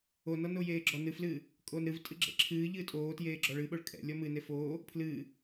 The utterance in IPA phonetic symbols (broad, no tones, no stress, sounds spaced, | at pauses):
o n ɔ n o j eː ɡ͡ǁ ɔ n ɨ f l ɨː | kʼ o n ɾ ɨ v tʼ ɨ ɡ͡ǁ ɛ̰ ǁʰ ɨː ʎ ɨː tʼ oː t j eː ɡ͡ǁ ɔ ɭ ɨ ɓ o ɭ kʼ ɛ̰ lʲ ɔ m ɨ n e f oː | pʰ l ɨː